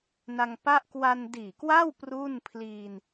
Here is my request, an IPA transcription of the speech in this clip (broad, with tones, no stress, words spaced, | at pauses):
na˧ŋpa˥˩ʔ kwa˧ndiː˨˩kwa˥˩w pru˥˩n pʰliː˧n